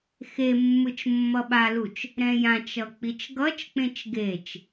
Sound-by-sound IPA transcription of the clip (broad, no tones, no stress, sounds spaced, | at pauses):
x e mː ɯ t͡ʃ mː ʌ ɓ a l u t͡ʃ | ɾ ɛ̃ j ã t͡ʃ ʌ k͡p i t͡ʃ ɡ ʌ t͡ʃ k͡p ẽ t͡ʃ ɡ e t͡ʃ